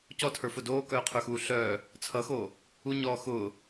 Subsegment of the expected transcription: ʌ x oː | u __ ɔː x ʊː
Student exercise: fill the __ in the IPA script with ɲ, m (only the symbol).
ɲ